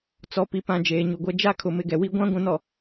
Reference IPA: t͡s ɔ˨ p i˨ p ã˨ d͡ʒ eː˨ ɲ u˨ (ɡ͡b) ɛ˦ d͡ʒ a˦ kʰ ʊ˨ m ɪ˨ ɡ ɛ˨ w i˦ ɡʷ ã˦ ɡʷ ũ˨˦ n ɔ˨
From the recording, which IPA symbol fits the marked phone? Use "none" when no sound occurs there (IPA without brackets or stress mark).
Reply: ɡʷ